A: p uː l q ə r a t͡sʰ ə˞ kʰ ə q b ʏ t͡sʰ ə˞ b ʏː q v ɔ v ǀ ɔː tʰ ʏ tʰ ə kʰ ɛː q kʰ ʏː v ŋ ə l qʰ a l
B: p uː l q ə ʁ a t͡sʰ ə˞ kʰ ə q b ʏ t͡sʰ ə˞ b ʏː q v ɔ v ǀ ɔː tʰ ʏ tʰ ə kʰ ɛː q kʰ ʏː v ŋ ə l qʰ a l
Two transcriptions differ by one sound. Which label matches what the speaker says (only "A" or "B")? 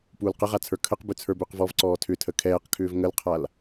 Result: B